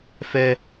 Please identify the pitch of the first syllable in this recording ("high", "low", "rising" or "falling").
high